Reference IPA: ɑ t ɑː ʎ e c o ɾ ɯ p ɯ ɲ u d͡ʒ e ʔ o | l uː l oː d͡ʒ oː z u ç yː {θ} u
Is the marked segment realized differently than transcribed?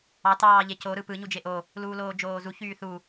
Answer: no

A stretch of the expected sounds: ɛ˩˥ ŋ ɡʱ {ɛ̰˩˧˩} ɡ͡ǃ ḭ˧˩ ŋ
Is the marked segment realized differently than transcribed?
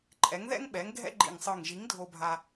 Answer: yes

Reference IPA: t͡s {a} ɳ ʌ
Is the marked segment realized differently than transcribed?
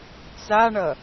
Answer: no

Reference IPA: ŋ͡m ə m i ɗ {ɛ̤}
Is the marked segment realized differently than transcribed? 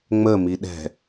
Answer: no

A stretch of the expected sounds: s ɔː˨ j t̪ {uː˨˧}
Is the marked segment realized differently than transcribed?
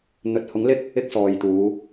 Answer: no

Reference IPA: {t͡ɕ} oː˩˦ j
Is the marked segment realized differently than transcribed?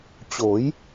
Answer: no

